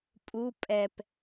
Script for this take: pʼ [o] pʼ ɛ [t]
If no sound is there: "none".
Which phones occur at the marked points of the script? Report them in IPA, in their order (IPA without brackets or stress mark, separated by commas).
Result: u, p